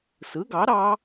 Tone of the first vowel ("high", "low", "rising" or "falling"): rising